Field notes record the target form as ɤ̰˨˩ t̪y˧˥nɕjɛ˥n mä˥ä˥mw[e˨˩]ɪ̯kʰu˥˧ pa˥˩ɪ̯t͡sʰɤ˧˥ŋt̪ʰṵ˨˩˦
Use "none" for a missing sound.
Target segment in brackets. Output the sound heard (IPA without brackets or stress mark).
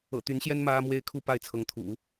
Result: e˥